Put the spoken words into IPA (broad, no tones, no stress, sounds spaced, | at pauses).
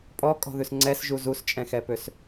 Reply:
pʼ ɔ kʼ ɔ̤ ð ʉ s ŋ͡ǀ ɛ s ʒ u z u s t͡ʃʼ ɛ̃ x ɛ p ø s